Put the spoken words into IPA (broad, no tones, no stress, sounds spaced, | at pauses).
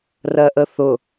r ɜ ʔ ə θ ʊ